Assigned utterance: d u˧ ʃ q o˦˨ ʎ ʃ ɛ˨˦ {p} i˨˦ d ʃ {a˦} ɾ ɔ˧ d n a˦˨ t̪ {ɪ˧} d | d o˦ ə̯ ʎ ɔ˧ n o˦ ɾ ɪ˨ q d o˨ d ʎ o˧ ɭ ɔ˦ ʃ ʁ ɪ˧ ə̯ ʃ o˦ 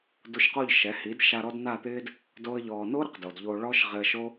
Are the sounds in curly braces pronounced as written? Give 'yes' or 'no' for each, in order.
no, no, no

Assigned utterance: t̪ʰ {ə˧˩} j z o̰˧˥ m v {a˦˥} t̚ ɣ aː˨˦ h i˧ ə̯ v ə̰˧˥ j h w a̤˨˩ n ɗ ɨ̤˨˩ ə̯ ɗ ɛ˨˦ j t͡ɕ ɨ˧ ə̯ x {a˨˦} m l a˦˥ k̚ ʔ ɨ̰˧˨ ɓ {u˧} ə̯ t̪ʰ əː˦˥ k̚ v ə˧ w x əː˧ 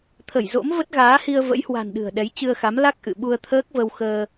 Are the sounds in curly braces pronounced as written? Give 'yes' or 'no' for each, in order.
yes, no, yes, yes

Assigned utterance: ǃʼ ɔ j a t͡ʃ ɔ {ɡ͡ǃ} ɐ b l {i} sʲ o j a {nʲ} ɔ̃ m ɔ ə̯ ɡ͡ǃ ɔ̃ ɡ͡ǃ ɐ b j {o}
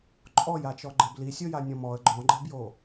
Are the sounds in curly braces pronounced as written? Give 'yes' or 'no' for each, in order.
yes, yes, yes, yes

